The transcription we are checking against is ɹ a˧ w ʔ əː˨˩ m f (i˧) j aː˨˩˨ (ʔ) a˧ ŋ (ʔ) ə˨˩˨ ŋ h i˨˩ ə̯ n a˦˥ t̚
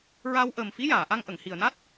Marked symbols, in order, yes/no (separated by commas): no, yes, yes